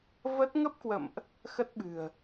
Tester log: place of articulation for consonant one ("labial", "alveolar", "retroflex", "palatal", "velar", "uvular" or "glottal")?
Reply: labial